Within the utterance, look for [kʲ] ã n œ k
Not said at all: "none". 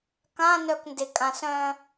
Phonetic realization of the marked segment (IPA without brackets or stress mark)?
k